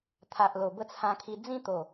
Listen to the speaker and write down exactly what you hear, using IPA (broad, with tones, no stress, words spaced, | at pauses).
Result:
t̪ʰa˨ʔlo˨˩ bə˥˧t͡sʰã˧kʰi˧ d͡zĩ˥˧t̪o˨˩